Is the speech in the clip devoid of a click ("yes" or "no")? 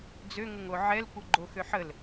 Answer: no